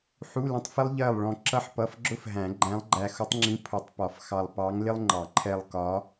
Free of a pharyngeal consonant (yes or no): no